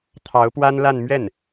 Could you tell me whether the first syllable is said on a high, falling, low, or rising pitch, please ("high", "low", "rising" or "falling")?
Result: rising